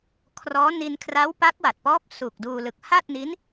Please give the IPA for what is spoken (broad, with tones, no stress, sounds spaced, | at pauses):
kʰ r ɔː˦˥ n i˧ n kʰ r a˦˥ w p a˦˥ k̚ w a˨˩ t̚ p ɔː˦˥ p̚ s u˨˩ k̚ d uː˧ l ɯ˨˩ k̚ h a˥˩ t̚ n i˦˥ n